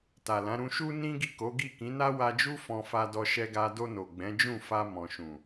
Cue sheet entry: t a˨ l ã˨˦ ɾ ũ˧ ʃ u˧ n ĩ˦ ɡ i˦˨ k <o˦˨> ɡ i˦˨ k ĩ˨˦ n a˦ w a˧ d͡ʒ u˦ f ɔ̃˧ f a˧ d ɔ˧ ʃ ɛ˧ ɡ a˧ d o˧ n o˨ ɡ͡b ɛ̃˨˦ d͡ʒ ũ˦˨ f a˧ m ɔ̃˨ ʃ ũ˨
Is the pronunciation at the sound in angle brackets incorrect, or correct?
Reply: incorrect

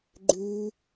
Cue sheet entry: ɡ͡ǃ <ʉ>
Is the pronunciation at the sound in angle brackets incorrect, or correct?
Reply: correct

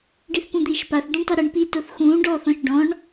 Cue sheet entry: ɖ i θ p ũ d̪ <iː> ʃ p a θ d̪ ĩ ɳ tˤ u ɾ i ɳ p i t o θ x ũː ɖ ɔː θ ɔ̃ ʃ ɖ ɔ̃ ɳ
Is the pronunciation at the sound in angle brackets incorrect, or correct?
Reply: correct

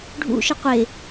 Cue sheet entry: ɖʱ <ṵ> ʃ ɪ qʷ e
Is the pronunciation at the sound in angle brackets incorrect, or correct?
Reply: correct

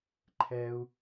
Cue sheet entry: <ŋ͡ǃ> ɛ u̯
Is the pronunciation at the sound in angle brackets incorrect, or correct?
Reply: incorrect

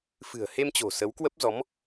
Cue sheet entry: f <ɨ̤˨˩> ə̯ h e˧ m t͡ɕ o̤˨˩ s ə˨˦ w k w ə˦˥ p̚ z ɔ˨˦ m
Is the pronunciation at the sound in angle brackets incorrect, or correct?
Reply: correct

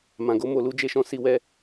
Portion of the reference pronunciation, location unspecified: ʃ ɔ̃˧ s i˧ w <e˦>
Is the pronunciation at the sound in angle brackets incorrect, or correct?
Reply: incorrect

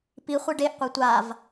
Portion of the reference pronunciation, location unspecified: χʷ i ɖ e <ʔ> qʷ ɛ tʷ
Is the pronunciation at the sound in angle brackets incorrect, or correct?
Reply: correct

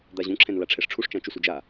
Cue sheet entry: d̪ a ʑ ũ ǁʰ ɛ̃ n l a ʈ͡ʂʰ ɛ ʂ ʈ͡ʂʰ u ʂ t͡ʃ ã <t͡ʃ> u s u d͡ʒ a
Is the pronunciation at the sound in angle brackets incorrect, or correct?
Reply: correct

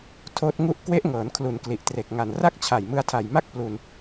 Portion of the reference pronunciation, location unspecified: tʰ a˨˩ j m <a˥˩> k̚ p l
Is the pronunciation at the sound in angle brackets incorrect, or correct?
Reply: correct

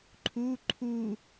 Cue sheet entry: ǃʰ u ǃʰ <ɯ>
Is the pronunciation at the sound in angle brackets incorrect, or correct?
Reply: incorrect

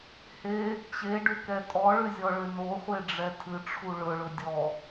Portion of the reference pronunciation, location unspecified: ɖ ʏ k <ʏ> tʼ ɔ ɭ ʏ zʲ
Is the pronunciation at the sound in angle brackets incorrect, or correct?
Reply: incorrect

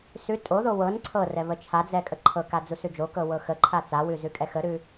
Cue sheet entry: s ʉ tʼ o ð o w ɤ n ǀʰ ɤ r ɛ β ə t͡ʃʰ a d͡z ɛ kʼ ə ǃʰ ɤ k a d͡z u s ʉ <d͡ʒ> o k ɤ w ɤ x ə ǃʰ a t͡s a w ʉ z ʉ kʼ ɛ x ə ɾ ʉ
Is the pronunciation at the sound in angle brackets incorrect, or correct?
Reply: correct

